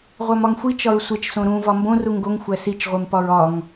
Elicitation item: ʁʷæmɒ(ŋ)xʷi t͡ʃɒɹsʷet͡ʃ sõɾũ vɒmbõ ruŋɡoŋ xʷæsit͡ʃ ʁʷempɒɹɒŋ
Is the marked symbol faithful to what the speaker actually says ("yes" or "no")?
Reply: yes